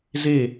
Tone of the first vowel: falling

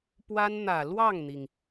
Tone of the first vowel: high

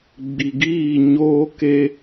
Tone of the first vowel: low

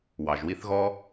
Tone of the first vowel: low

